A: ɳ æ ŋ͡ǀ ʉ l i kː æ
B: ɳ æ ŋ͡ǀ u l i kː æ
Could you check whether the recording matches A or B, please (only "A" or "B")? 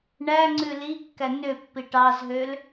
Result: A